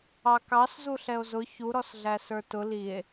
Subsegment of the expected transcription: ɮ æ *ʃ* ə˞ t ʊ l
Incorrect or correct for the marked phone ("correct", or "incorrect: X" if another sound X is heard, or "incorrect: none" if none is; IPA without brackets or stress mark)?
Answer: incorrect: s